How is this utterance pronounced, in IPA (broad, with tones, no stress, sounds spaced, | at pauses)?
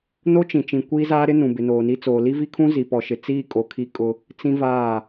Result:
n o˦ t͡ʃ ĩ˨ t͡ʃ ĩ˨ kʷ iː˦ z aː˦ ɾ ɪ˦ n ũ˨ b ɪ˨ n oː˨ n i˦ t͡s oː˨ l i˦ v i˦ kʰ ũ˦ z i˨ p ɔ˨ ʃ ɪ˨ t͡s iː˦˨ kʼ o˨ kʰ i˦ kʼ ʊ˦ | t͡s ĩ˦ v aː˦˨